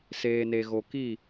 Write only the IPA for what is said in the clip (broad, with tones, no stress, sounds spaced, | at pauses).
s eː˨ n e˨ ɣ o˨ k i˦˨